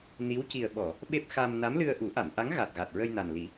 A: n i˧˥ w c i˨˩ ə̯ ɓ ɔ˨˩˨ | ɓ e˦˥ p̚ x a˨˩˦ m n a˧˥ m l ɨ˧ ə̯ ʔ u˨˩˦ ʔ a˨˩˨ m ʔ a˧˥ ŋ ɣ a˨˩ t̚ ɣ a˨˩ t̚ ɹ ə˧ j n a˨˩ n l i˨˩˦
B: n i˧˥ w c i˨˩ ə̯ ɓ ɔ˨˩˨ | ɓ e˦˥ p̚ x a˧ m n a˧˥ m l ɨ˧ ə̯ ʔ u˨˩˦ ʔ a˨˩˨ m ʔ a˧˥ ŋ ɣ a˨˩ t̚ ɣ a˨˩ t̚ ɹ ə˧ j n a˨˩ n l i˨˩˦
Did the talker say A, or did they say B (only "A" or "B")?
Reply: B